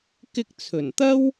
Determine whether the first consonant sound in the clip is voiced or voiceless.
voiceless